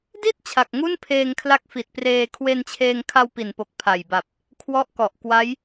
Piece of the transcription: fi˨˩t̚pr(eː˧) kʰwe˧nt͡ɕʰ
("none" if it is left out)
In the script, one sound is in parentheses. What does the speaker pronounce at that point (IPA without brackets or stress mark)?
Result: eː˧